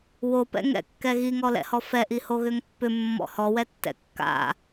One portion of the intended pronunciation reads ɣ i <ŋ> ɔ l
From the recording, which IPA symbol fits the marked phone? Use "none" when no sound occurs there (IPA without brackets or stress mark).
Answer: ŋ